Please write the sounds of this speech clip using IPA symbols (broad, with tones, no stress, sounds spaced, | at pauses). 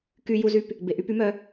k y˧ j u˧ z y˧ p | b e˩ ʔ y˧ p y˧˥ m œ˧